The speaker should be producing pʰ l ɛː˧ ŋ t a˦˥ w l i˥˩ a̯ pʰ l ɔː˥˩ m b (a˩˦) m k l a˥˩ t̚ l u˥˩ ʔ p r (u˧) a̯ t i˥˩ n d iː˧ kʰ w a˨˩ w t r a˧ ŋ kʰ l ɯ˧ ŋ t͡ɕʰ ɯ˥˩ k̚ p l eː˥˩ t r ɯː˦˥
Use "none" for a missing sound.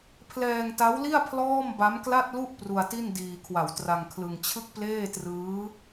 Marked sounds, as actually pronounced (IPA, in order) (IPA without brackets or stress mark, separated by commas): a˦˥, u˧